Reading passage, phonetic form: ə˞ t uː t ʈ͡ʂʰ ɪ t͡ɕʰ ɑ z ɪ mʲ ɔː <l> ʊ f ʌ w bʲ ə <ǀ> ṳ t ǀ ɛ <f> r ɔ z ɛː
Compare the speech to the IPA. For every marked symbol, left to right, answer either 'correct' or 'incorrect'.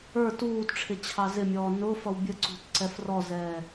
incorrect: n, correct, correct

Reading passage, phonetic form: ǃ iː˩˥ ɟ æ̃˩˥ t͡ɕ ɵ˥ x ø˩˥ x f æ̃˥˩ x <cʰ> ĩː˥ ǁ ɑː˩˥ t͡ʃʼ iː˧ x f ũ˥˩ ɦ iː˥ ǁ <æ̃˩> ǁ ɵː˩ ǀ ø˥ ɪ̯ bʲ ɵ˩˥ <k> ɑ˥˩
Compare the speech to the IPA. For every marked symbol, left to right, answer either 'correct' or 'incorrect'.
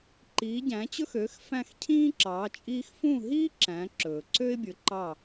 correct, incorrect: æ̃˩˥, incorrect: ǃ

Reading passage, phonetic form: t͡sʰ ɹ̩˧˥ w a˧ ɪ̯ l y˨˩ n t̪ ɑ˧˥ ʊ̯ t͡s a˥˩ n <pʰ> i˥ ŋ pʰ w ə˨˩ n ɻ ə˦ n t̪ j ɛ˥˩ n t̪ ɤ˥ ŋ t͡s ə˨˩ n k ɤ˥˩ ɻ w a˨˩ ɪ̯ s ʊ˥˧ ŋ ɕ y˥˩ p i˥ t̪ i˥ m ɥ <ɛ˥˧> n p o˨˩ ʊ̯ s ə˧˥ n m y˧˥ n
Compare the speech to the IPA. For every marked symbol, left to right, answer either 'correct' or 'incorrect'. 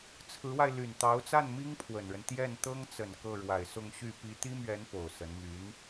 incorrect: m, incorrect: ɛ˧˥

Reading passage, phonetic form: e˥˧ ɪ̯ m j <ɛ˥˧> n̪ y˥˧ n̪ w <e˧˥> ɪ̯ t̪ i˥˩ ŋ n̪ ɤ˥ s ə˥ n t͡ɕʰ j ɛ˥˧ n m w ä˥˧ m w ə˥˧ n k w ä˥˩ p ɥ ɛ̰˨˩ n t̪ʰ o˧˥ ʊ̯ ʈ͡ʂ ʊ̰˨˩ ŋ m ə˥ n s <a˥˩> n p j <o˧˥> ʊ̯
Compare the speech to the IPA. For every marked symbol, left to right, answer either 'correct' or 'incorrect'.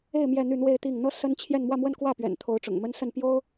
correct, incorrect: e˥˧, incorrect: ə˥˩, incorrect: o˥

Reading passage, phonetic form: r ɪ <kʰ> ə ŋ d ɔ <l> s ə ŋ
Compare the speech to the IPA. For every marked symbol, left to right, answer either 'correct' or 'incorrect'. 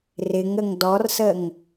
incorrect: ŋ, incorrect: r

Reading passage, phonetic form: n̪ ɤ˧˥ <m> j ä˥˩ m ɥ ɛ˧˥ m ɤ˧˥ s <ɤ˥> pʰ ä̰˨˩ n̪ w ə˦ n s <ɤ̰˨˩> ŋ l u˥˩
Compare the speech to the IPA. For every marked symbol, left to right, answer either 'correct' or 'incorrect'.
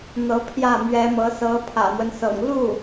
incorrect: pʰ, incorrect: ɤ˧˥, correct

